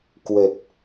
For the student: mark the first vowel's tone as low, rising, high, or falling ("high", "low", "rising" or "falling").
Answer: low